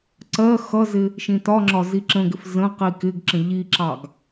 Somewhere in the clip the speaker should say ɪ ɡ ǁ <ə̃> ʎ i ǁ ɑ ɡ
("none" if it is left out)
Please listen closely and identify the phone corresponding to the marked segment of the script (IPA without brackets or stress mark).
ə̃